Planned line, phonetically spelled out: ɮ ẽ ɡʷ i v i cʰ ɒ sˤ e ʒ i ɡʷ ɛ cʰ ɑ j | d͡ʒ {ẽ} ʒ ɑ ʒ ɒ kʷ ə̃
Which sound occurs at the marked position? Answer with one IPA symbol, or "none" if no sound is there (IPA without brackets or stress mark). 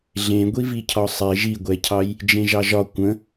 ẽ